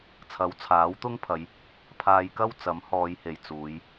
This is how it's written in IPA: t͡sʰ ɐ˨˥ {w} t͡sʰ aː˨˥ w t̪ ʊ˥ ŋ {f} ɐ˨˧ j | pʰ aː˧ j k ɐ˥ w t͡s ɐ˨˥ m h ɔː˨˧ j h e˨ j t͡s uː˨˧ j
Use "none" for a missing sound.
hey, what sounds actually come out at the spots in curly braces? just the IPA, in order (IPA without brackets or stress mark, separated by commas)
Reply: w, pʰ